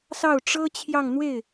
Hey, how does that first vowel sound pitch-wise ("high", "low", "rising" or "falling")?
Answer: falling